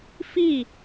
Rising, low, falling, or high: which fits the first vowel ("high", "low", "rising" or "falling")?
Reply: falling